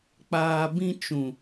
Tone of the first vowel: low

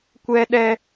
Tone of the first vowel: high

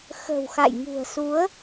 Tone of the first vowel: low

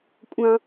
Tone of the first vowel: high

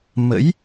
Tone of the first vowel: rising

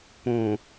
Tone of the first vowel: low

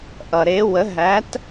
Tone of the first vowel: low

